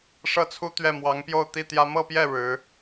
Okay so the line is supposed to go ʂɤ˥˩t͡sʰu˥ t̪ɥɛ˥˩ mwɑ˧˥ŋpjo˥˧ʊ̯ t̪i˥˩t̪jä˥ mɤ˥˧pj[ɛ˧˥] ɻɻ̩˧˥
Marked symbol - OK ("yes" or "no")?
no